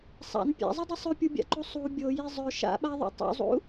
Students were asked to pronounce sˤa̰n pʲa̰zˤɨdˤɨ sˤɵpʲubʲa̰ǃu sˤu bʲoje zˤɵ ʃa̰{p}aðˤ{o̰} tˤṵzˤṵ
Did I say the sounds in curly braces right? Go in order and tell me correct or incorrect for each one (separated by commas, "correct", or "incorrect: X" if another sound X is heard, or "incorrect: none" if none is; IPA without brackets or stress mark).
incorrect: ɓ, correct